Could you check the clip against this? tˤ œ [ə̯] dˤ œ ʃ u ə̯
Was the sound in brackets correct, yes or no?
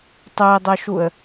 no